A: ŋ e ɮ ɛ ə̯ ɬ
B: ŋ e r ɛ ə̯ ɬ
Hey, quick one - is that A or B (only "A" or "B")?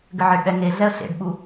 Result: A